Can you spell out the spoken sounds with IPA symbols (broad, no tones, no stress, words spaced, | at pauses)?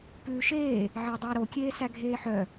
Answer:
pʉːʃeː | ʕedˤæɾokʲeː sæɡʱeːħœ